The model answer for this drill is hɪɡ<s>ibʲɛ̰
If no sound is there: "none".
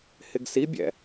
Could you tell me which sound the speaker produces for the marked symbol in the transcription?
s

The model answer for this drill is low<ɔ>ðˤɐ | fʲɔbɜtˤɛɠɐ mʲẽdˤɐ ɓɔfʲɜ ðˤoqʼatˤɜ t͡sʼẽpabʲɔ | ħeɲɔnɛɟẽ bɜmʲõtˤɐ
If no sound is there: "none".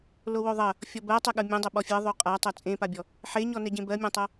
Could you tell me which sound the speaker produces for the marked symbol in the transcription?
o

